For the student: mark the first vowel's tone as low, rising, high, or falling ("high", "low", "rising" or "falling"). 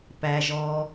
high